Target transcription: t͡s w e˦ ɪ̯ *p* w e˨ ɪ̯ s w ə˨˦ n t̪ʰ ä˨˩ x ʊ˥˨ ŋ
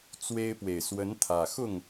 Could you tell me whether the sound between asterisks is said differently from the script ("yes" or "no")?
no